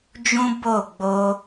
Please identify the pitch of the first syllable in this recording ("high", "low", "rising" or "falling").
high